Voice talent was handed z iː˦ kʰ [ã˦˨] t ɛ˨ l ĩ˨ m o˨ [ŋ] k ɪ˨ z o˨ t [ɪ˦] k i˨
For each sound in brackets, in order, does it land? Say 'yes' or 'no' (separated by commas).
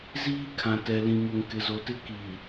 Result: no, yes, yes